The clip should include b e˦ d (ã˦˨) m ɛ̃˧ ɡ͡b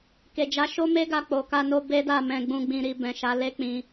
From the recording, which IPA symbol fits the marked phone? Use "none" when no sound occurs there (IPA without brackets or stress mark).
a˦˨